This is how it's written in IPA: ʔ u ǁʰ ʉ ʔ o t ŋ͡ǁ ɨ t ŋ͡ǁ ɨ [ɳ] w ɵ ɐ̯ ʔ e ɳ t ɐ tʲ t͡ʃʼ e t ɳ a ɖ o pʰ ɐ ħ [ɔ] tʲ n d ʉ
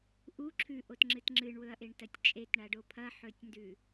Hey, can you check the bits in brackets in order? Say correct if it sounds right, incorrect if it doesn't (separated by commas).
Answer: correct, incorrect